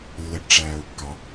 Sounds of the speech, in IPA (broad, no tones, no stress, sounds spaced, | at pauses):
lː ə ʈ ʈ͡ʂ æː ʊ̯ kː ɑ